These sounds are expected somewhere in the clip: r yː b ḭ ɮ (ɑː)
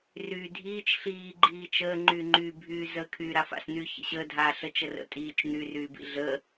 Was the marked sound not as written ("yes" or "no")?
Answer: yes